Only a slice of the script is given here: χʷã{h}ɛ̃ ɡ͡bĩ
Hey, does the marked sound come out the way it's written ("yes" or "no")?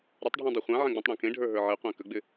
no